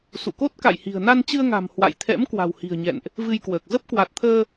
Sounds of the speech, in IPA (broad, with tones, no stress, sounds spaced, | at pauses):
s ṵ˧˨ k o˦˥ t̚ k a̰˧˨ j h i̤˨˩ ə̯ n a˧ n t͡ɕ ɨ˧ ə̯ ŋ a̤˨˩ m h w a̰˧˨ j t̪ʰ ɛ̰˧˥ m k w a̤˨˩ w h i̤˨˩ ə̯ ɲ ɛ̰˧˨ n ʔ | v ɨ˧ j k w əː˨˩ k̚ z ə˦˥ p̚ k w a˨˩ t̚ t̪ʰ əː˧